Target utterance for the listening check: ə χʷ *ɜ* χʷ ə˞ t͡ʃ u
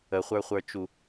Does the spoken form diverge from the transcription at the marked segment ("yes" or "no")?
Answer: yes